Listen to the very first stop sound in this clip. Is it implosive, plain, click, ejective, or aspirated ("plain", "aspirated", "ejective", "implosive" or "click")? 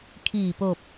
aspirated